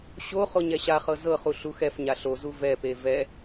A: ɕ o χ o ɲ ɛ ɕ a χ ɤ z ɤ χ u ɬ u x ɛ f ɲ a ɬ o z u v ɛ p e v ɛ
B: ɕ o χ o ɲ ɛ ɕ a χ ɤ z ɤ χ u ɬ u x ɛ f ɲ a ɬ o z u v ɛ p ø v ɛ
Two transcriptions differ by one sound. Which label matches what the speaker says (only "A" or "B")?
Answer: A